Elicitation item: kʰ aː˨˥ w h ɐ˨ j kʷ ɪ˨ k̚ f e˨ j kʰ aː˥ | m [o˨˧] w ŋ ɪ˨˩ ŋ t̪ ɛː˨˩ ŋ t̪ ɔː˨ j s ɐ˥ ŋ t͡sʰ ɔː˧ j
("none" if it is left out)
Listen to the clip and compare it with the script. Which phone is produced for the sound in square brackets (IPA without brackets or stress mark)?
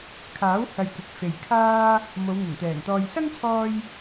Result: o˨˧